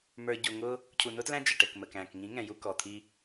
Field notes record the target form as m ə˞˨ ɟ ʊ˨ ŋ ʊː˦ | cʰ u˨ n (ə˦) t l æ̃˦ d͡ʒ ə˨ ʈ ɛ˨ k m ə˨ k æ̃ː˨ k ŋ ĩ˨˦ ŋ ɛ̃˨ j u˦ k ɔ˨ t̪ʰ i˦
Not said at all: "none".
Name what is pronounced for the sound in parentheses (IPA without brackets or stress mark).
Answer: ʊ˦